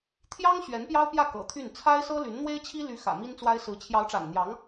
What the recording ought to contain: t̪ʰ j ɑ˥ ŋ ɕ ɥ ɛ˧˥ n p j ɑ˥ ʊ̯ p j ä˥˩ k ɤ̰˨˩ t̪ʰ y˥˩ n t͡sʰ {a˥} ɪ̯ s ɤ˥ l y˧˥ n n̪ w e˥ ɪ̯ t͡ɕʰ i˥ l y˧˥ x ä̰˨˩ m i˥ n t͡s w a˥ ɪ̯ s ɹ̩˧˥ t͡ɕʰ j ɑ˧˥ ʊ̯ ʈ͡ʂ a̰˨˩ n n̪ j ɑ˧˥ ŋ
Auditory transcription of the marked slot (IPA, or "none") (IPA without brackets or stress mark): a˥